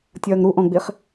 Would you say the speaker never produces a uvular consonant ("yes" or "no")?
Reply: no